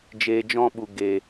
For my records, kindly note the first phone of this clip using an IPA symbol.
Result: d͡ʒ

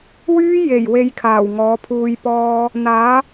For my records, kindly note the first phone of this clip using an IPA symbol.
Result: w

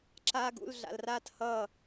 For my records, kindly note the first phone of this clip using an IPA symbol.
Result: ǁ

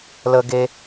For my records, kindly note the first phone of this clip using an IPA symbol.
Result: l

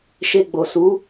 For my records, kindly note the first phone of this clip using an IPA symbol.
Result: ʃ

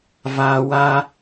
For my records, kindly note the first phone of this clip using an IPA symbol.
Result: v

